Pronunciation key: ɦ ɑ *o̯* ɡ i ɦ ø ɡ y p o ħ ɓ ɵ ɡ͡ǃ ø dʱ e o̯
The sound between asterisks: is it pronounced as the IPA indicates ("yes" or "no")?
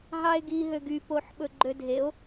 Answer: no